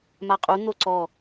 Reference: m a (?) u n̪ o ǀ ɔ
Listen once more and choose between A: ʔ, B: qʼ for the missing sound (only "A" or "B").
B